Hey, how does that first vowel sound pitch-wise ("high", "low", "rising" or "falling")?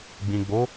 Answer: low